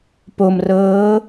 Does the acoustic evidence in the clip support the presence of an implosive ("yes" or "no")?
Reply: no